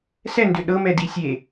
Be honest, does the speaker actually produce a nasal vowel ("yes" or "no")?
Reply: no